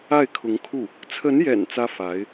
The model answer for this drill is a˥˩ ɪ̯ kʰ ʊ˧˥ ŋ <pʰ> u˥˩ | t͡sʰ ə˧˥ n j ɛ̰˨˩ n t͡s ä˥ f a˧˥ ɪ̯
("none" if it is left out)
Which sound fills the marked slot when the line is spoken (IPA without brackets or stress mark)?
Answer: kʰ